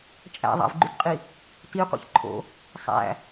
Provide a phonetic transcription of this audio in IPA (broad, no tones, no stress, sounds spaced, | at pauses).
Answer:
t͡ʃʼ æ̰ ðˤ a̰ v ɡ͡ǃ ʉ t qʼ i | t i qʷ ḭ ç ǃʰ o̰ | sˤ æ̰